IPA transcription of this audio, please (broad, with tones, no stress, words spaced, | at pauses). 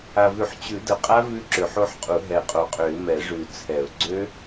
a˨˩vʉ˨˩˦ħ t͡ɕʉ˨˩˦də˨˩qʼa˦˥ vʉ˦˥ǁø˨˩ħo˦˥ħqʼu˨˩˦ ɦɛ˨˩qʼo˨˩qʼø˨˩˦ɪ̯ mɛ˨˩˦ʐʉ˨˩˦t͡sʰɛ˨˩˦ʊ̯ ɡ͡ǀø˦˥